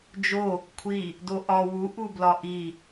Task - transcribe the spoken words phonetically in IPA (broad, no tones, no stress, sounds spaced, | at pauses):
d͡ʒ o | kʷʰ i | d o ʔ ɒ w u ʔ u b l ɒ ʔ i